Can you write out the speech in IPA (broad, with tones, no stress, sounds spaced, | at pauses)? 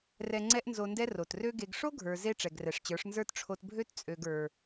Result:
r ɛ˧ ŋ͡ǀ ɛ˦ ʔ n z o˧ n d ɛ˦ r o˨ t r ø˦ ɡ e˧ ɡ ʂ o˦ ɡʱ ə˞˨ z e˧ ʈ͡ʂ ɛ˨ ɡ r ɛ˨ ʂ t͡ɕ ə˞˨˦ ʂ n z ə˞˦ t ʈ͡ʂʰ o˧ t bʱ ø˦ t t͡sʼ ø˧ ɡ ə˞˧